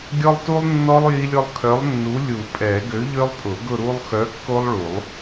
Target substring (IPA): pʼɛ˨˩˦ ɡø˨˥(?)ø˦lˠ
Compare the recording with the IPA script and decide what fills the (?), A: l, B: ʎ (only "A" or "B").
B